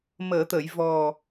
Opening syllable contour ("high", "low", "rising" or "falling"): low